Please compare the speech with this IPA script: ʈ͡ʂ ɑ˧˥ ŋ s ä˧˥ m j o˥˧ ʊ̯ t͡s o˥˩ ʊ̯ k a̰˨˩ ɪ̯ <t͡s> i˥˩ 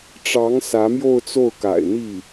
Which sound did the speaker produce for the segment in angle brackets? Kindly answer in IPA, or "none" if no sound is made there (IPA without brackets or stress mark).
n̪